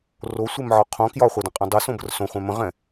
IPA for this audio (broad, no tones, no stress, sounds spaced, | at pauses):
r o sʷ e m ʕ ɒ qʰ õ k j ɒ χʷ ɛ d ə̃ qʼ ɛ̃ dˤ ɛ s õ b ə r s õ χʷ ɛ̃ m ə̃ ʁ ɛ̃